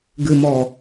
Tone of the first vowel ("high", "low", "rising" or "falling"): low